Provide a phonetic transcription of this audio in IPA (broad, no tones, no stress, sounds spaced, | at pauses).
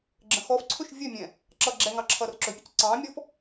ɡ͡ǁ ə̃ x ɔ f ǀʰ ɵ ʃ vʲ ɵ mʲ ɛ̃ | ǁ ʌː ɡ͡ǁ ɛ ŋ ɑ ǁʰ ʌː r ǁ ɵ pʲ ɵ c ǀ ɑ̃ː mʲ ɔ f